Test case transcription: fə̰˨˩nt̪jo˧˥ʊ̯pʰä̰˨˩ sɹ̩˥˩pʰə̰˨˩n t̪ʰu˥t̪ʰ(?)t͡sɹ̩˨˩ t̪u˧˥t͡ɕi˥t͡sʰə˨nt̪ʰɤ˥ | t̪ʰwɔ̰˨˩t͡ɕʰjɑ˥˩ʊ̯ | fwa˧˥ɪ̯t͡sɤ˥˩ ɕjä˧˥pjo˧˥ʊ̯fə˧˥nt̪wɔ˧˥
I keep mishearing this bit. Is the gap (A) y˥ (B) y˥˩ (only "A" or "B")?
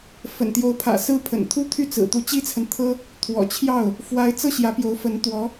B